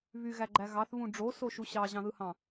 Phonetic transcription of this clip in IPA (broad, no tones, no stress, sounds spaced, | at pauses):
β y ɣ æ ɡ͡ǃ æ ɣ ɑ θ β ũ ɖ͡ʐ o s o ʃ u ɕ ɑ ʑ ɑ̃ ð ɯ h ɑ̃